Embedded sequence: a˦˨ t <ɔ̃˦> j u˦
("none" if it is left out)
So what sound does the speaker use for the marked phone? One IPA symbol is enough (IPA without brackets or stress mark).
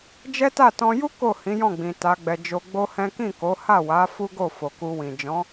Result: ɔ̃˧